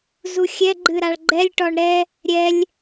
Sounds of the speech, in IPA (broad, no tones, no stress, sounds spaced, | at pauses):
z u xʲ ɛ ɡ͡ǃ ɨ ɾ a ɭ ɡ͡ǃ ɛ lʲ ʈ ɔ ɳ ɾ ɛ | ɾʲ ɛ lʲ